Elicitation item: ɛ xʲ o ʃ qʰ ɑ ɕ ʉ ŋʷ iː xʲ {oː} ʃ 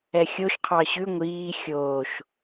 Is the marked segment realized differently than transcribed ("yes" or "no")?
no